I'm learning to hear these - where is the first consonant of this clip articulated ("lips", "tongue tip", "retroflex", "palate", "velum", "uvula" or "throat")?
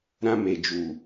tongue tip